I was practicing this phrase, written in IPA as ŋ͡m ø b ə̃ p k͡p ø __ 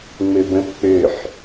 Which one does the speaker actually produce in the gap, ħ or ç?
ħ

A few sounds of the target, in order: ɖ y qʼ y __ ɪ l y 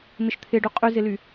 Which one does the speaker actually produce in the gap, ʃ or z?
z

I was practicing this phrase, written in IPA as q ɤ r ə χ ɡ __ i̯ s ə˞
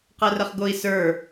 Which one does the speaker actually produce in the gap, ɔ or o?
o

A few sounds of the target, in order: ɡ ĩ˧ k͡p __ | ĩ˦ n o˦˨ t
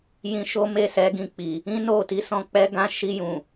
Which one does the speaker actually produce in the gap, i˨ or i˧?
i˨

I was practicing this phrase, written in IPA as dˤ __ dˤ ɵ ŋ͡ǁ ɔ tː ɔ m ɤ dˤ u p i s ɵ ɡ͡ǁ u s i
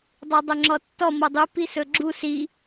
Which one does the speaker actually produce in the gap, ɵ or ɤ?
ɤ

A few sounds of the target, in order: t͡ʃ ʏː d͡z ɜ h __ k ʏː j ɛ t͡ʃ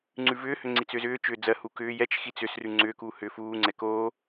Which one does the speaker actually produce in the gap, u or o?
u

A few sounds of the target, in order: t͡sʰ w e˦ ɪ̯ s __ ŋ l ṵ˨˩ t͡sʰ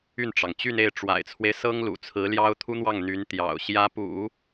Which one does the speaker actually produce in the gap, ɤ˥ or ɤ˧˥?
ɤ˥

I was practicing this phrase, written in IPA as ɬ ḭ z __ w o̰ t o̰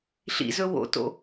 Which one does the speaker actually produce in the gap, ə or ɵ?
ɵ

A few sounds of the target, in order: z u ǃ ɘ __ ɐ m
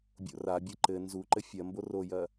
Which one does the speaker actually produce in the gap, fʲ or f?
fʲ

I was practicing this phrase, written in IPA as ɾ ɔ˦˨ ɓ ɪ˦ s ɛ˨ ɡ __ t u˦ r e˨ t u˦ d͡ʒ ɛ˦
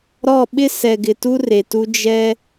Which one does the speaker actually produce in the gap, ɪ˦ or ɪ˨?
ɪ˨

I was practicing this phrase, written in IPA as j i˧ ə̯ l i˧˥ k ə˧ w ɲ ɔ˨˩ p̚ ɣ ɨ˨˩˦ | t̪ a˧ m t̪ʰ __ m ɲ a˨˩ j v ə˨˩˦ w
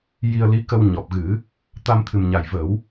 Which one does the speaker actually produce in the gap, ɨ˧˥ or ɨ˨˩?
ɨ˨˩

